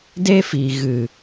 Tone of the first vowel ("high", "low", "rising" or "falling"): high